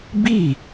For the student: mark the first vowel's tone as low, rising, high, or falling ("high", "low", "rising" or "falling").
falling